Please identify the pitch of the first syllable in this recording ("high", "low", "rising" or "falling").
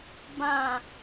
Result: falling